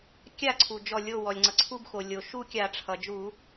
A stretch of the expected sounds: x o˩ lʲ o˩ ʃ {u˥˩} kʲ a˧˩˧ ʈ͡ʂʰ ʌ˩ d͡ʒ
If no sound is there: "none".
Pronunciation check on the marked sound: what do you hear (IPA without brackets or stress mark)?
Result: u˥˩